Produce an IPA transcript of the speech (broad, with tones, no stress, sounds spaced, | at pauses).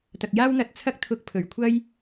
t̪ ɐ˨ k̚ j aː˥ w n̪ ɐ˧ t̚ t͡sʰ ɐ˥ k̚ t̪ʰ ʊ˧ k̚ pʰ ɵ˨˩ ɥ kʷʰ ɐ˥ j